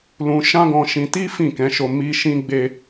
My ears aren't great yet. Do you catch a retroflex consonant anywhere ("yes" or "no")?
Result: no